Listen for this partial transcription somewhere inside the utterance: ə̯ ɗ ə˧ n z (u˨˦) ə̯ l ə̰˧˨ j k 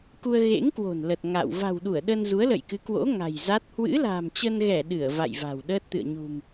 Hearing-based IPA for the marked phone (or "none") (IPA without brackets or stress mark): u˨˦